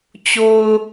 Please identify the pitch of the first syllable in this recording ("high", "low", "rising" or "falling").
low